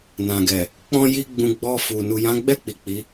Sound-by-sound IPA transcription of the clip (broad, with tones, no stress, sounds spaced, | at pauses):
n ã˨ ɡ ɛ˨ | k͡p ɔ̃˦ j i˦ ɡ͡b ũ˧ ɡ͡b ɔ˧ f u˨ n u˨ j ã˨˦ ɡ͡b ɛ˦˨ k͡p i˨ k͡p i˨˦